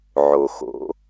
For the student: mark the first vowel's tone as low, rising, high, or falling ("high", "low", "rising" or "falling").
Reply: low